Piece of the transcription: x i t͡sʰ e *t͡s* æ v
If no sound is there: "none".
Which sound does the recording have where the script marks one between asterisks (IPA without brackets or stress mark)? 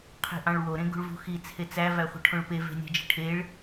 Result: t͡s